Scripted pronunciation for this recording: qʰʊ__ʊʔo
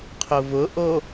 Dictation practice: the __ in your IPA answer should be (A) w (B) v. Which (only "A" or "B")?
B